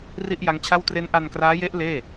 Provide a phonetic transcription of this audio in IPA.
r i˥˩ ʔ j a˦˥ ŋ t͡ɕʰ a˥˩ w t r e˦˥ n ʔ a˧ n k r aː˦˥ j e˦˥ ʔ l eː˥˩

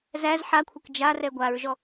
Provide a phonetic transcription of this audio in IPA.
z æ z ħ a kʷʰ ɐ k d͡ʒ a r ɛ ɡʷ a ɹ ʒ ɔ

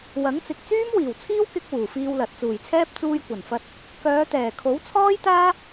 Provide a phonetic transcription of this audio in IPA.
w ɐ˨˥ ŋ t͡s ɪ˨ k̚ t͡s yː˥ m w iː˨˩ w t͡sʰ iː˥ w k ɪ˧ k̚ w uː˨˩ f iː˧ w l ɐ˨ t̚ t͡s uː˨˩ j t͡sʰ ɛː˥ p̚ t͡s uː˧ j kʷ ɐ˨˩ n f ɐ˧ t̚ | k œː˨˧ t̪ ɛː˨˩ kʰ o˨˥ w t͡sʰ ɔː˥ j t̪ aː˥

